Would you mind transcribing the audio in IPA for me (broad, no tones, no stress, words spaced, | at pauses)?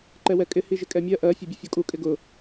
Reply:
ǃɛwɛkʼɪ hiʒɪkʼɛmʲɜ ʔɜ fʲɛbʲʊfʲɔkʼu kʼɪɡʊ